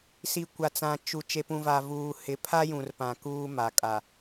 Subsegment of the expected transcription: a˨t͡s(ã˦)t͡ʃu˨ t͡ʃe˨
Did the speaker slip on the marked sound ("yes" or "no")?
yes